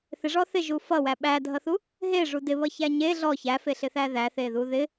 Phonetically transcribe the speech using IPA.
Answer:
θ ɪ ʐ ɔ θ ɪ ʒ u f ʌ w æ ɓ æ dʱ ʌ θ u | ɦ e ʐ u d ɪ β ʌ ç æ ɲ e ɮ ɔ ç æ f e ɬ ɪ θ æ ð æ θ e ð u ð ɪ

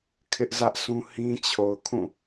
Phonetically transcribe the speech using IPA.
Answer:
kʰ ɪ˦ ʔ z ä˦ ʔ s ũ˦ h ĩ˦ t͡ɕʰ o˨ ʊ̯ kʰ ũ˦˨

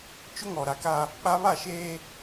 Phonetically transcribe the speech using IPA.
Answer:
t͡ʃ ʊ˦ ŋ ɔ˨ ɾ a˨ k a˦ | k͡p a˦ β a˦˨ ʃ eː˦

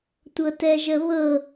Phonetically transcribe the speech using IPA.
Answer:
tʷ ɤ t ɛ ʒ ə β ɤ

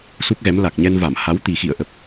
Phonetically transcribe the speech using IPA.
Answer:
s u˦˥ k̚ ɣ ɛ˨˦ m l a˨˩ k̚ ɲ ɛ˧ n v a˧˩ m h a˨˦ w t̪ i˨˩ x ḭ˧˨ ə̯ ʔ ə˨˩ p̚

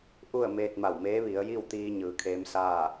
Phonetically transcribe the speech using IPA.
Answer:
ʔ u˥˨ ə̯ m eː˧ t̚ m a˧˩ w m eː˧˥ ʋ i˩˧ ə̯ j i˥˨ w t̪ iː˧ ɲ ɯː˩˧ kʰ eː˧˥ m s aː˥˨

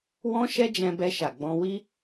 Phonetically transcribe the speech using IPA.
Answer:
w ɔ̃˦ ʃ ɛ˦ d͡ʒ ɛ̃˧ b ɛ˧ ʃ a˨ ɡ͡b ɔ̃˧ w i˦

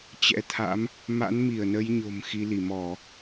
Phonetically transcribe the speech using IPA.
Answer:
t͡ɕ ɛ̰˧˥ t̪ʰ a̰˧˥ m | m a̰˧˥ n m i˧˩ ə̯ n ə˨˦ j ɲ o̤˨˩ m x i˨˦ l i˧˩ m ɔ˧˩˨

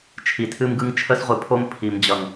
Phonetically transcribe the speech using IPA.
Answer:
t͡ʃʰ i˨ tʰ ɨ˦ m ɡ ɯ˦ ŋ t͡ʃʰ ə˦ s ʁʷ ɨ˨ pʰ o˦ m pʰ i˨ m d͡ʑ ʌ˨ ŋ

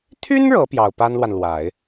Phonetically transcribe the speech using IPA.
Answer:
t̪ʰ y˥ n ɻ ɤ˧˥ p j ɑ˨˩ ʊ̯ p a˥ n l w a˨ n l w a˨˩˦ ɪ̯

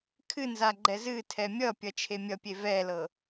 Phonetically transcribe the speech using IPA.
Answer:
kʰ ɨ n z a ɡ͡ǃ ɛ z ɨ tʰ ɛ mʲ ʌ pʲ ʌ t͡ʃʰ e mʲ ʌ pʲ e v ɛ l ɤ

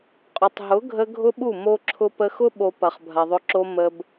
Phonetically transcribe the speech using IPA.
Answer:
qʼ ʊ˨ tˤ ɦ ʊ˨˦ ɡʱ ə˧ ɡʱ ʊ˦ ɓ u˦˨ m o˧ ǁʰ ʊ˧ p ə˧ x ʊ˦ ɓ o˨ p ɐ˨ χ bʱ ɐ˨ ðˤ ʊ˧ ǁ o˧ m ə˧ b

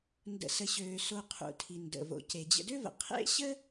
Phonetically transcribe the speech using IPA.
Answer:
n d ə̰˨ s ə˨ ɕ øː˨ s o˨ qʰ ṵ˩ tʰ i˩ n d ə̰˩ v o̰˩ c e˩ d͡ʑ ə̰˨ d ø˦ v ə̰˩ qʰ ḛ˦ ɕ ə˥

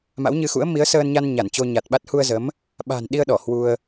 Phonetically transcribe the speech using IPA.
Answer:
m a̰˧˥ w ɲ ɨ˧ x ṵ˧˥ ə̯ m i˨˦ ə̯ s əː˧ n ɲ a˧ n ɲ a˧˩ n t͡ɕ o˧ ɲ a˨˩ t̚ ɓ a˦˥ t̚ h u˧ ə̯ z ə˨˦ m | ɓ a̤˨˩ n ɗ i˧ ə̯ ɗ ɔ˧˩ h w u˧ ə̯

